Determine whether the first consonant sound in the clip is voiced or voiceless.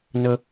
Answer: voiced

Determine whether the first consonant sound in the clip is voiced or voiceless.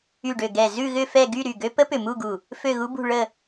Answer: voiced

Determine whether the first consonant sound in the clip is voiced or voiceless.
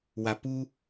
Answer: voiced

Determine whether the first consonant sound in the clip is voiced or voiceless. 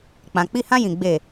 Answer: voiceless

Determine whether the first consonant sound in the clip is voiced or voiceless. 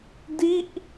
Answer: voiced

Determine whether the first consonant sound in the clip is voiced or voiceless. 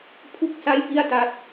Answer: voiceless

